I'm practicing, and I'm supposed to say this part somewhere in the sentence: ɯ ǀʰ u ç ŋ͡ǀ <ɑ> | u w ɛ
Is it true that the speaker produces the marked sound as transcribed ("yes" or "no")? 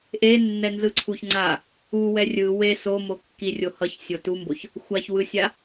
no